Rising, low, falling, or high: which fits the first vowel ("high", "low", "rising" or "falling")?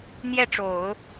falling